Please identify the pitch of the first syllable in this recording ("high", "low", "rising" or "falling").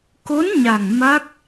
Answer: rising